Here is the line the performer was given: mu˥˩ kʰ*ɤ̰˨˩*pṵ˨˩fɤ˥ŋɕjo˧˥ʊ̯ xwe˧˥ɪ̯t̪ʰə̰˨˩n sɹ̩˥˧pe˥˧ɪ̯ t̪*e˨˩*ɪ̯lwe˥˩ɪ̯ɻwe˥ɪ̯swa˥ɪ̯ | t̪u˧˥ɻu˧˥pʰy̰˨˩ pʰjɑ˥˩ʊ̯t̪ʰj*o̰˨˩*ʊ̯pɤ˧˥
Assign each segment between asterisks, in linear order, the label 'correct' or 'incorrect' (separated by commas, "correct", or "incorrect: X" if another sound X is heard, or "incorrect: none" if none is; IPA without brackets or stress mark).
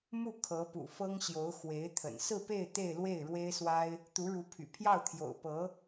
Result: incorrect: ɤ˧˥, incorrect: e˥˧, correct